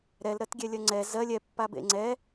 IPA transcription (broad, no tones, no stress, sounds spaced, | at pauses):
ɾ ɛ l ɾ ɜ t ɡʲ ɛ lʲ ɜ ŋ͡ǀ ɛ z ɜ lʲ ɛ pː a b ḛ ŋ͡ǀ ɛ